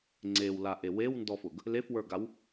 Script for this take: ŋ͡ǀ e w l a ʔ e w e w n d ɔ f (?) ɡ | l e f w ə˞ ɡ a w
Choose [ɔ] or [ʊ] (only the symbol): ʊ